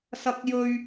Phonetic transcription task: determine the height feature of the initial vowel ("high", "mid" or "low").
low